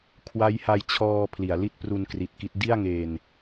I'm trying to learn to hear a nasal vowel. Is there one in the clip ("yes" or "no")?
no